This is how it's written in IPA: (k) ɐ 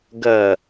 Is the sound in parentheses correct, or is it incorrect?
incorrect